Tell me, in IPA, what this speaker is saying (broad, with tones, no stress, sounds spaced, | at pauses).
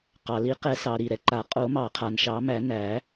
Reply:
q ɑ˩ l i˨˩˦ q ɛ˨˩˦ s ɑ˩ ɾ i˩ ɾ ɛ˩ ǃ a˨˩˦ qʼ o˨˩˦ m ɑ˨˩˦ qʰ a˩ n ʃ ɑ˨˩˦ m æ˨˩˦ n æ˨˩˦